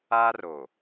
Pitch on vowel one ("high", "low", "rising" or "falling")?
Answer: high